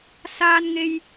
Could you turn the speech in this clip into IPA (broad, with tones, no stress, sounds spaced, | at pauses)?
s aː˥ n ŋ e˥ j